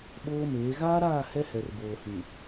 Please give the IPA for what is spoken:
ɓ oː˦ m eː˨˦ ɣ aː˦ ɾ aː˦˨ h ɛ˦ h ɛ˨ r b oː˨ h ĩ˨

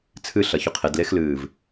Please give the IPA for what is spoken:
t͡sʰ ɨ ɬ ɐ ç ɵ qʰ e d l e x l ɨː v

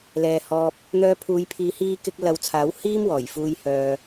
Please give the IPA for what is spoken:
l ɛː˨ h ɔː˧ p̚ | n̪ œː˧ pʰ uː˨˧ j pʰ iː˨˧ h iː˧ k ɪ˧ k̚ l ɐ˨˧ w t͡sʰ aː˨˥ w h iː˥ m w ɔː˨˩ j f uː˧ j h œː˧

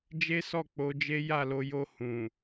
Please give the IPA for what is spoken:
d͡ʒ e˦ s ɔ˦˨ k͡p o˨˦ d͡ʒ e˦ j a˦˨ l o˧ j o˧ h ũ˨

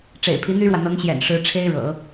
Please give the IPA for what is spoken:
ʈ͡ʂ ḛ˨˩ ɪ̯ pʰ i˧˥ n̪ y˥ ɻ w ä˨ n̪ ɤ˧˥ ŋ ɕ j ɛ̰˨˩ n ʂ ɻ̩˧˥ ʈ͡ʂʰ e˥ ɪ̯ ɻ ɤ̰˨˩˦

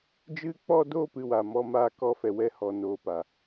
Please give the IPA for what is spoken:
d͡ʒ ɨ˦ k͡p ɔ˦ d o˦ p ɨ˧ w a˨ m ɔ˦ m aː˦ k ɔ˦ f ɛ˨ w ɛ˧ h ɔ˨ n oː˧ p a˨

